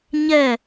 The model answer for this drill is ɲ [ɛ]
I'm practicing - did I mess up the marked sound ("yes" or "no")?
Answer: no